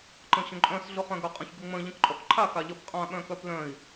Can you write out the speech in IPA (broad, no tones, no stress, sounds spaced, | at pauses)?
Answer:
ǃ ə̃ ɕ ə̃ ǃʼ œ̃ s ɮ ʊ χ œ̃ ɡ œ qʼ ə̃ ç ɡ ə ŋ͡m ə̃ ʎ ə̃ k ǃʼ ɔ k ǃʰ a k a ʎ ə p qʼ ã ɓ œ̃ k œ p l œ̃ i̯